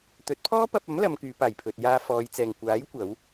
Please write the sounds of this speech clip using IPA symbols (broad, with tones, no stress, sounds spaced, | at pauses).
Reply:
t̪ ɵ˨˥ t̚ pʰ ɔː˥ p ɐ˧ p̚ ɐ˨˥ m l ɐ˨˧ m k yː˨˧ p aː˨˩ j pʰ ɵ˨ t̚ j aː˧ f ɔː˨˧ j t͡s ɛː˨ ŋ kʷ aː˨˥ j kʷ ɐ˨˥ w